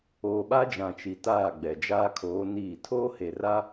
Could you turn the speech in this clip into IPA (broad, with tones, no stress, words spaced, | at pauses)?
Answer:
oː˨ɓa˦d͡ʒã˨ t͡ʃi˨taː˦˨ɡ͡bɛ˨ d͡ʒaː˦kʰoː˨˦ niː˦˨ tʰoː˦he˨ ra˦